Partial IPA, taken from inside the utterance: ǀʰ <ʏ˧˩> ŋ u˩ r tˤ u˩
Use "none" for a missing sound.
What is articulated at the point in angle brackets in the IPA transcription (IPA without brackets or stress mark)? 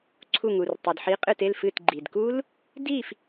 u˧˩